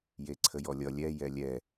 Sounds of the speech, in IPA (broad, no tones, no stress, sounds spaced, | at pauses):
j e ǀʰ ə j ɔ lʲ ʌ lʲ ɛ j ɛ lʲ ɛ